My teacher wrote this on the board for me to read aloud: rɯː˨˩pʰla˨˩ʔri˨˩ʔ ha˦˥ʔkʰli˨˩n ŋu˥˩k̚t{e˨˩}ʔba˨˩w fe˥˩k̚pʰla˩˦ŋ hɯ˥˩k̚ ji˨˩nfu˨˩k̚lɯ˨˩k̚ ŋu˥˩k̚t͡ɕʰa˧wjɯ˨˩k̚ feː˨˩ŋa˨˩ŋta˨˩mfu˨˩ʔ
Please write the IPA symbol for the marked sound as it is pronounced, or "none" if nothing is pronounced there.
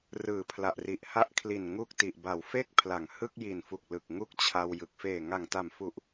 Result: i˨˩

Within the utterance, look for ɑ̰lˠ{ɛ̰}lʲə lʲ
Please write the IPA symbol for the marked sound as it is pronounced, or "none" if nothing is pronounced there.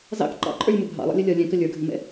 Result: ɛ̰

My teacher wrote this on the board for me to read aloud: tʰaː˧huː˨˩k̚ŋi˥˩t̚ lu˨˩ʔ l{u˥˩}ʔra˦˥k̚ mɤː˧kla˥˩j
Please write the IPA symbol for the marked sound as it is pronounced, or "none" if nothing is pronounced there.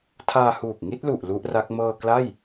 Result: u˦˥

